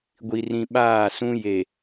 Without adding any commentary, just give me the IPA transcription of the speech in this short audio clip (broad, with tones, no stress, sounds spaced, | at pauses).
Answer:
ɡʷ i˨ r ĩ˨ ɓ aː˦˨ s ũ˦ j e˨